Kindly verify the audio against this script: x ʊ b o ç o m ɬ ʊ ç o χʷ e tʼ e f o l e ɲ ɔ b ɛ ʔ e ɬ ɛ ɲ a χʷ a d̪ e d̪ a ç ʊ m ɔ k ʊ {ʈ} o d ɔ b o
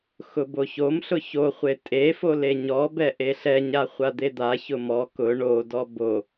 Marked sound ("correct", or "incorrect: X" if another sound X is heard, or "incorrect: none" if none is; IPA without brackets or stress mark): incorrect: ɳ